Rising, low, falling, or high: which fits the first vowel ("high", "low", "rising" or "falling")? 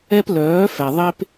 high